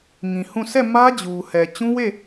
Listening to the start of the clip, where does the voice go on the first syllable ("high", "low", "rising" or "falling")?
low